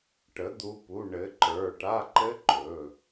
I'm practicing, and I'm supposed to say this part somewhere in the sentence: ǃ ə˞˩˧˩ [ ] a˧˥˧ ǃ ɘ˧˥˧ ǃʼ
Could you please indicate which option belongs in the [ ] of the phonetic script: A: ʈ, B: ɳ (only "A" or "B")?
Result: A